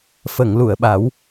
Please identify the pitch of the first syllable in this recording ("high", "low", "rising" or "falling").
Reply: low